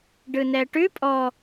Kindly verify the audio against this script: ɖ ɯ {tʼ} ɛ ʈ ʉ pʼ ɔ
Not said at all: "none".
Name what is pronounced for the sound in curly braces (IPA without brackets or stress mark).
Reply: n